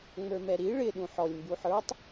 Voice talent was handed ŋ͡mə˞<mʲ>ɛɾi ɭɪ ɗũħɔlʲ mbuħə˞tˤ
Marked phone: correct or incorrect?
incorrect: m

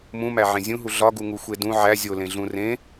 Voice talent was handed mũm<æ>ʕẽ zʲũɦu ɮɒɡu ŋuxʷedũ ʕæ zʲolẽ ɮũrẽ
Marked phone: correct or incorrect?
correct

